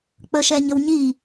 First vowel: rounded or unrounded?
unrounded